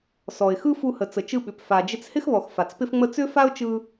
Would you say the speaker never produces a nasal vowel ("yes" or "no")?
yes